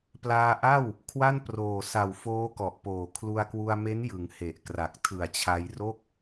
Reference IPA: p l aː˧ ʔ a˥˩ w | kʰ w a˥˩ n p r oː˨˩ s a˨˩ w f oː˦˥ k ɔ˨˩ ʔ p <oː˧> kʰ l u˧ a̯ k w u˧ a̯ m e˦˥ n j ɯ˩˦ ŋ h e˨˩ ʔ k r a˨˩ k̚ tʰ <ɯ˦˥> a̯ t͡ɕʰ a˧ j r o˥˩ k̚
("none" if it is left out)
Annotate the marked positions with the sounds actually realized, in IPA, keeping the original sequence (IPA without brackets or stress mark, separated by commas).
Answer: oː˨˩, ɯ˨˩